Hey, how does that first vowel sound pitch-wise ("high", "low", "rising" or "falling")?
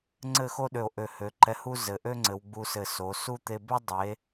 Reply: falling